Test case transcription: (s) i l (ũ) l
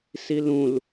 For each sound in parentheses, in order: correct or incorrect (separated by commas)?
correct, correct